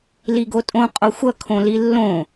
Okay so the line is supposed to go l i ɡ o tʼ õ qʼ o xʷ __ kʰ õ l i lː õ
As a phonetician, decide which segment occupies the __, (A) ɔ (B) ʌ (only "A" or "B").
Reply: B